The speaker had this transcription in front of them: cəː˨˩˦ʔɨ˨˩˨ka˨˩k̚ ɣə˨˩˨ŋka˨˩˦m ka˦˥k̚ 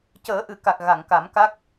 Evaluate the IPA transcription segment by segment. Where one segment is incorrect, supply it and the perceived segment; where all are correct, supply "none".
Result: ə˨˩˨ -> a˨˩˨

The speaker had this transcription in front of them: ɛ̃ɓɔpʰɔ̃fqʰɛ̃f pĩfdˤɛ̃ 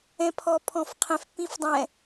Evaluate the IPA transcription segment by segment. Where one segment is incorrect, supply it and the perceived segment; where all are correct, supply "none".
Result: ɓ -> pʰ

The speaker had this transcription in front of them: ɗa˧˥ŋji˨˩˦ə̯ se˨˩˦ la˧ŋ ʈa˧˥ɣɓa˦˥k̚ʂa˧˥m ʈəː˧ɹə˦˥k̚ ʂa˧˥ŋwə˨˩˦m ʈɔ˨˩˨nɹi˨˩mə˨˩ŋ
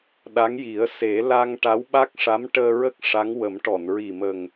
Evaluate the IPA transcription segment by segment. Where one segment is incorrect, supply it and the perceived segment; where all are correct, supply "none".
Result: ɣ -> w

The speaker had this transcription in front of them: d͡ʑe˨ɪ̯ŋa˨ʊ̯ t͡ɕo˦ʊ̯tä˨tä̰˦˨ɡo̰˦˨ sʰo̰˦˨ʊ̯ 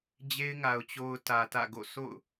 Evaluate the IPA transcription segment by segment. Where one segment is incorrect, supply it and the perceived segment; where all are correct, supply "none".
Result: e˨ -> e˦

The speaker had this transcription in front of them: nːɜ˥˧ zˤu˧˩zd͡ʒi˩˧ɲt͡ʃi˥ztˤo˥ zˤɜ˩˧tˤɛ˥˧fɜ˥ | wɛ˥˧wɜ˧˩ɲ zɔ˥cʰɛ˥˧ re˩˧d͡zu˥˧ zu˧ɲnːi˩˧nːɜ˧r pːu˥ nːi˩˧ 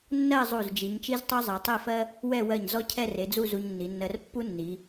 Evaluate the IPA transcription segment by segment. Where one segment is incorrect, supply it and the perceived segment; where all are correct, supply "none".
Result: none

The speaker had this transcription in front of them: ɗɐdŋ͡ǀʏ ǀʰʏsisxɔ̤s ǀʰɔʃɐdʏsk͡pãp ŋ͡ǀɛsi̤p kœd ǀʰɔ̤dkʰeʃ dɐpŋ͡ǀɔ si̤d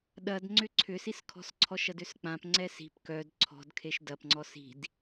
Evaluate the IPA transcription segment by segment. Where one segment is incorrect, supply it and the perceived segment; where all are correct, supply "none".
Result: x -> kʰ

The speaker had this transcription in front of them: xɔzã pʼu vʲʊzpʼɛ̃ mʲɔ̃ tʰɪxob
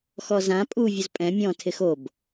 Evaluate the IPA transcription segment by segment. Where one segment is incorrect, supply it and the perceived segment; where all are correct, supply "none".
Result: none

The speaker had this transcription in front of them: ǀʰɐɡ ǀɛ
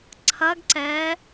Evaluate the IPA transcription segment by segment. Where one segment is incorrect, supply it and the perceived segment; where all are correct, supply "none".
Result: none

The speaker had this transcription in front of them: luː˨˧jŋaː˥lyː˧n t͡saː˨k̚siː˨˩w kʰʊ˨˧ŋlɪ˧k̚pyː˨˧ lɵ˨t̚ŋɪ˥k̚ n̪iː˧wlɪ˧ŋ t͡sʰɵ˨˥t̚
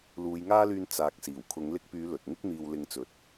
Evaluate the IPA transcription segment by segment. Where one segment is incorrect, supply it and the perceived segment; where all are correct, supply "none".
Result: t͡sʰ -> t͡s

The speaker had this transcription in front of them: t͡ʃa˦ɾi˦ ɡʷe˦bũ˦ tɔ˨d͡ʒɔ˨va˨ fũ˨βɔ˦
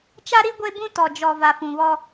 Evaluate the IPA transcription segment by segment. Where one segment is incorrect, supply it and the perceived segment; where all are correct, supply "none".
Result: none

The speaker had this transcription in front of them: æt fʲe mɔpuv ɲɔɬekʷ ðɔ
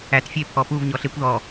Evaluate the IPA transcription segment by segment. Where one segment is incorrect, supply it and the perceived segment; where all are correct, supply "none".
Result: m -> pʰ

